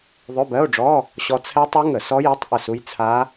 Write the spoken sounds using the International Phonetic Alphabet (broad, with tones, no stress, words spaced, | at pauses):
ðˤɵ˧˥˧bɜ˧˥˧o̯ɖ͡ʐɔ˧˥˧ | ɕɔ˧t͡sʰɛ˦˥tˤu˦˥ ŋə˧˩˧ sɔ˦˥ji˧˥˧tˤ ʔə˥˩su˦˥j t͡sʰa˦˥